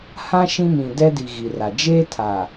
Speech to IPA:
h ã˦ ʃ ĩ˦ m ĩ˨ d ɛ˦ d i˨ ɣ i˨ r a˨ d͡ʒ eː˦ tʰ a˨

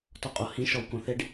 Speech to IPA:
t ɔ qʼ o h ĩ ʃ ɔ w k õ θ e ɖ

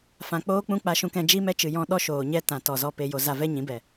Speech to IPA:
f ã˨ k͡p oː˦ k͡p ũ˦ k͡p a˧ ʃ ũ˧ k ɛ̃˧ d͡ʒ i˦ m ɛ˦ t͡ʃ ɨ˨ j ɔ̃˧ ɗ ɔ˦ ʃ oː˨ ɲ ɛ˦ t ã˨ t ɔ˨ z ɔ˧ p e˧ j o˧ z a˧ v ɛ˦ ɲ ĩ˨˦ b ɛ˨

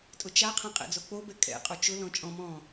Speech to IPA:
tʼ ʊ t͡ʃ a qʰ ã qʼ ɛ̰ d͡z o k͡p o b ɛ kʼ ɛ̰ qʼ o t͡ʃ ʊ l ɔ̃ t͡ʃʼ ɔ̃ m ɔ̃ː

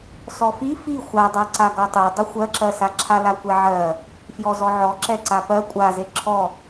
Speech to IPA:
s ɔ f i f i xʷ a dˤ a ǀ a ɡ ɔ tˤ o dˤ o xʷ ɜ ǁ ɜ s a ǁʰ a l a kʷ ɛ ʕ ɜ | f j ɔ z ɔ ʕ ɔ ǁ ɛ ǀ a p ɜ kʷʼ a z e ǁʰ ɔ

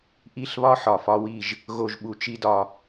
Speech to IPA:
ʔ i˥˩ ɬ β ɒ˥ ħ ɒ˩ f ɒ˥ w i˥˩ ʒ | ɣ o˥˩ ʒ ɓ u˧ t͡ʃ i˥ d ɒ˧

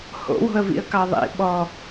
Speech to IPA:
h o̰ w o̤ ə̯ v ḭ ə̯ k ɑ ðˤ ḭ ɓ ɔ

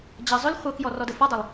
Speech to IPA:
d͡ʑ ɐ zˤ ʏ l χʷ ɤ k j ɔ r ɔ d ə f ɔ dˤ ʏ lˠ

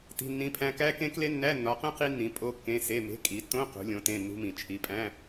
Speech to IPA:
t i̤˧˥˧ nː ĩ˧˥˧ pʰ æ̃˦˥ k æ˦˥ k ẽ˦˥ k l e˦˥ nː æ˧˥˧ nː ɒ˨˥ q ẽ˦˥ q i˦˥ nː ĩ˨˥ pʼ o˧˥˧ kː ẽ˧˥˧ s e˧˥˧ m e̤˧˥˧ kʼ i˨˥ tː õ˧˥˧ q ṳ˨˥ lʲ õ˨˥ t ẽ˧˥˧ nː ṳ˦˥ m ĩ˨˥ t͡ʃʰ i˧˥˧ pʼ æ̃˧˥˧

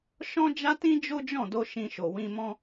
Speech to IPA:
ʃ ɔ̃˦ d͡ʒ a˦ t ĩ˦ d͡ʒ o˦ d͡ʒ ɔ̃˦˨ d o˧ ʃ ĩ˧ ʃ o˨ w ĩ˧ m ɔ̃˦

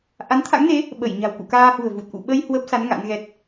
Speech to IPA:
ʔ a˨˦ n t̪ʰ a̰˧˥ ŋ n e˨˦ | ɓ ə˧˩ j ɲ a̤˨˩ w k ṵ˧˨ k aː˧ h ṳ˨˩ ə̯ v u˨˩ t̚ ʔ ṵ˧˨ ɓ ə˧ j h w ə˦˥ p̚ s a˨˦ n ŋ a̰˧˥ n ɣ ɛ˦˥ t̚

